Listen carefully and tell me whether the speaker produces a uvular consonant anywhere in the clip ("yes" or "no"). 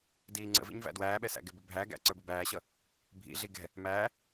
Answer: no